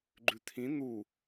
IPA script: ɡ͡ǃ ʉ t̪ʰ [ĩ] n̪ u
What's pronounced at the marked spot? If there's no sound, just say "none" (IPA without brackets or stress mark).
ĩ